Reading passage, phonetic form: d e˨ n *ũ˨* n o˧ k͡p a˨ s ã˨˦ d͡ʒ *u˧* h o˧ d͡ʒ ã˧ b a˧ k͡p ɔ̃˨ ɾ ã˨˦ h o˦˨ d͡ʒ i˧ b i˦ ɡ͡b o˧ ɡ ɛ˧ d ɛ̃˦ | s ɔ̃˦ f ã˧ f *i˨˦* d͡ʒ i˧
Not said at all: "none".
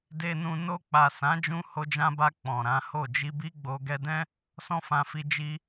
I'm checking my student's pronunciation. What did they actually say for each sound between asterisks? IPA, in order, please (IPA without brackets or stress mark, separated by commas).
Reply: ũ˨, ũ˧, i˧